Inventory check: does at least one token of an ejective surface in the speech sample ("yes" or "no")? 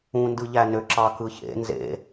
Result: no